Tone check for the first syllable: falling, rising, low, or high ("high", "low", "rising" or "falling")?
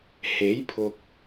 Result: rising